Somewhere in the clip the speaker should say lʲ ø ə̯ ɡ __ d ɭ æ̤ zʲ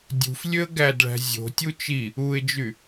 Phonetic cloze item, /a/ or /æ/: æ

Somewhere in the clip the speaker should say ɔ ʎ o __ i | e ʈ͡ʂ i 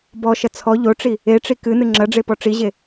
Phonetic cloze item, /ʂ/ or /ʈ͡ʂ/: ʈ͡ʂ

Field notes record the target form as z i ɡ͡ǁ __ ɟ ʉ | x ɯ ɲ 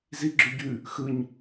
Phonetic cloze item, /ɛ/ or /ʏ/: ʏ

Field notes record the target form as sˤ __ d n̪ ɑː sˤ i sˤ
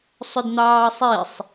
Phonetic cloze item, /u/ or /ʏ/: ʏ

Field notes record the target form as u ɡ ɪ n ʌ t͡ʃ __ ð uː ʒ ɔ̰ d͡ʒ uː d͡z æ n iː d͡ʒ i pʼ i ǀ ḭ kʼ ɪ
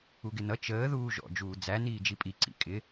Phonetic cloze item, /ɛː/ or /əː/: əː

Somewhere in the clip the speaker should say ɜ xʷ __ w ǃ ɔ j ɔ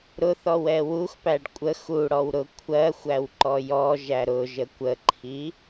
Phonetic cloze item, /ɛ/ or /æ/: æ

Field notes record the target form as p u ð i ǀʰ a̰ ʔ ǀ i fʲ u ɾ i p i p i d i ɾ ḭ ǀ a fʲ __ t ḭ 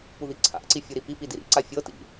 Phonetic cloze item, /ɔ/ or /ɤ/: ɤ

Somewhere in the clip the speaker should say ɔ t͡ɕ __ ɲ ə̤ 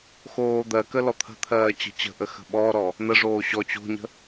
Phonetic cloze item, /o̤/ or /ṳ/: o̤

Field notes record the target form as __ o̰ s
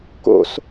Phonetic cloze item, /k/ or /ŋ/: k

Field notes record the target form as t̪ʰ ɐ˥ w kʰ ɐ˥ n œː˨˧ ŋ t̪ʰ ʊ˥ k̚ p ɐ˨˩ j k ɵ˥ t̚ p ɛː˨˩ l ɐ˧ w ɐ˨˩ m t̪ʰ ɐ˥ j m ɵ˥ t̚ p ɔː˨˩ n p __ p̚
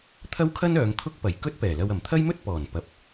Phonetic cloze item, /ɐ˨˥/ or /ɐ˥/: ɐ˨˥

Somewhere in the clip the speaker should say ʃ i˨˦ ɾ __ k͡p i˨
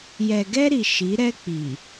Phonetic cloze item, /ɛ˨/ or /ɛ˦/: ɛ˦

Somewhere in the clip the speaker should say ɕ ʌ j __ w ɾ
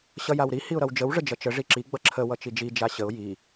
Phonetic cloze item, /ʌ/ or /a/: a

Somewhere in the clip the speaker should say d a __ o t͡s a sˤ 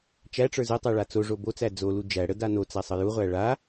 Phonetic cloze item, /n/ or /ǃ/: n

